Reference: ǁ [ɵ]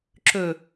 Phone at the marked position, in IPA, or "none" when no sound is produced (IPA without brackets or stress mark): ɵ